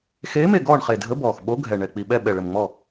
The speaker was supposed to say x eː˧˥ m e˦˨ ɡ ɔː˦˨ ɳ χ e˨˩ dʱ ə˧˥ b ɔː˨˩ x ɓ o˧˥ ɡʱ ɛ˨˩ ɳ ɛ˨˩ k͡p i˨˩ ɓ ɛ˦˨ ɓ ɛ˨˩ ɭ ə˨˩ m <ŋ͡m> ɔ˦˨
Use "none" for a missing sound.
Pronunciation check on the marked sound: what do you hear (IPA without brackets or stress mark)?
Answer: ŋ͡m